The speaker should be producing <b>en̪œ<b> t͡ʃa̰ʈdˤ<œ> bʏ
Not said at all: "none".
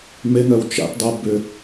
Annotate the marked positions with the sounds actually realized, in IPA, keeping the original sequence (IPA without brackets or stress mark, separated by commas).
m, w, ɛ